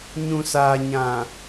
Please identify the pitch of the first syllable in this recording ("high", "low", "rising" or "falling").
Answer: low